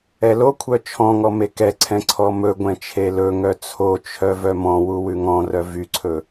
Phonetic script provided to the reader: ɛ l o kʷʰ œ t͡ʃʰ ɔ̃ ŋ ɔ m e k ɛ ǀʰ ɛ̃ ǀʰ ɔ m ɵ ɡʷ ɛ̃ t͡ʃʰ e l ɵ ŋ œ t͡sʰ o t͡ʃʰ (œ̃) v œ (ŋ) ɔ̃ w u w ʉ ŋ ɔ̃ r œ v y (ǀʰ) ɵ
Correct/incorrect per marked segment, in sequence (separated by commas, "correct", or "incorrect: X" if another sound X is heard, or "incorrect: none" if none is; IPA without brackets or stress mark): incorrect: œ, incorrect: m, correct